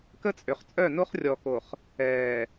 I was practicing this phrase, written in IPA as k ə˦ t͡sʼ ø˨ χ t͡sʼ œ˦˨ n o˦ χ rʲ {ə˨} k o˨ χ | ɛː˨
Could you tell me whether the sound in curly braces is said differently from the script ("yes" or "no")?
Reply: yes